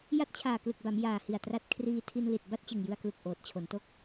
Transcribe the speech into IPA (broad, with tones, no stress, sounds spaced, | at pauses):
j a˦˥ t̚ t͡ɕʰ aː˨˩ k l ɯ˨˩ k̚ b a˩˦ m j aː˨˩ h i˨˩ a̯ t r a˦˥ t̚ kʰ r iː˧ tʰ i˧ n l i˨˩ t̚ b a˥˩ t̚ t͡ɕ ɯ˨˩ ŋ j ɯ˧ a̯ k l u˨˩ k̚ ʔ oː˨˩ t̚ t͡ɕʰ o˩˦ n t o˥˩ k̚